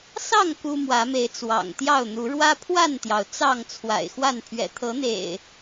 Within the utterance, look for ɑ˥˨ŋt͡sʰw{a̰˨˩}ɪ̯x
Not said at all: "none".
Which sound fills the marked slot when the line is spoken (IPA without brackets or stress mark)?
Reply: a̰˨˩